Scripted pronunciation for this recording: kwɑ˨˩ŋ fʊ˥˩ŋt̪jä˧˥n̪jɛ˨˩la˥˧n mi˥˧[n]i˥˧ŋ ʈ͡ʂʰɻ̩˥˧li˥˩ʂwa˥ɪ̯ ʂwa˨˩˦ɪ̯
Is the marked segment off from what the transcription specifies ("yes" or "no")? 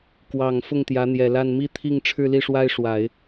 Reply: yes